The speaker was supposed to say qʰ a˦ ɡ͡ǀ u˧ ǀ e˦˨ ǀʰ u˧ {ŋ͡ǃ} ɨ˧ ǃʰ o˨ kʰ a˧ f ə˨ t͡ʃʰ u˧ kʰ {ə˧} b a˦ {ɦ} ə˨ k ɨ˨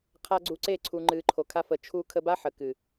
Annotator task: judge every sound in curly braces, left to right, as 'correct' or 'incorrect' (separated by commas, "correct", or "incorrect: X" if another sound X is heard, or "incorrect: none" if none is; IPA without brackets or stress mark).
correct, correct, incorrect: ħ